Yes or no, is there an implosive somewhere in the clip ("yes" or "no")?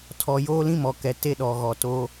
yes